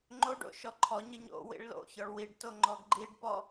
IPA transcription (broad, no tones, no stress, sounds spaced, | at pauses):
ŋ͡ǃ o ɖ o̰ ʃ ɔ ǃʰ ɔ ɲ ɨ ɲ o̰ w ḭ ɭ l o̰ ç ɔ ɭ w i ɖ t o ŋ͡ǃ ɔ ɡ ɡ͡ǃ i ɖ p ɔ